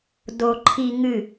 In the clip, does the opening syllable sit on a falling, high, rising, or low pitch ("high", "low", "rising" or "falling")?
low